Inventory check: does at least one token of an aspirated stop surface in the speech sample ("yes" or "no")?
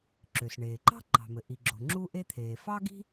yes